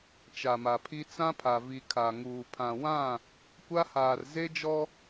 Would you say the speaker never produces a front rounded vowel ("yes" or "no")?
yes